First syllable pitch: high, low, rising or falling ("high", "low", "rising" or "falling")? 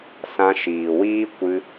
high